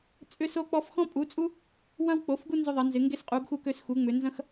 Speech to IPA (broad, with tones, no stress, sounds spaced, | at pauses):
t͡sʼ ʏ˦ s o˦ k͡p ɔ˦ f x ɔ̃˦ pʼ u˩˥ t͡sʼ u˦ | w ɐ̃˦ w k͡p o˩˥ f ɡ u˦ n z ʏ˦ ðˤ ɐ˩˥ n z ɪ˩˥ ŋ ɡ e˦ s qʼ u˩˥ ɡ x u˦ k ø˦ s x u˩˥ ŋ͡m ʏ˩˥ n z ɐ̃˦ x